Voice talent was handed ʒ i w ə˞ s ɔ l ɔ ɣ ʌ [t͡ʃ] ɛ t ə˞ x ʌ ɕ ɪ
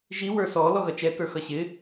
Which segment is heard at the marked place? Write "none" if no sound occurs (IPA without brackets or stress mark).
t͡ʃ